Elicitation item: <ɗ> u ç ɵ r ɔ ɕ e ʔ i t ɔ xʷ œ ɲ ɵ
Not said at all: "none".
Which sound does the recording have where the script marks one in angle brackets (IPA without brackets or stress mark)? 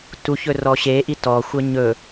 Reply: t